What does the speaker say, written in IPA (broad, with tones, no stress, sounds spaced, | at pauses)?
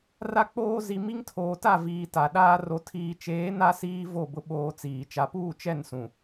r a˦ k͡p oː˦ z i˨ m i˦ ŋ tʰ oː˨ t a˦˨ v iː˨ t a˨ ɗ aː˦ r o˨ tʰ iː˨ t͡ʃ eː˨˦ n a˦ s iː˦ v o˦˨ b ʊ˦ ɓ oː˦ t͡s iː˨ t͡ʃ a˨ p uː˦˨ t͡ʃ ɛ˦˨ n s ũ˨